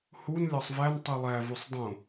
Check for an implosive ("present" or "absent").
absent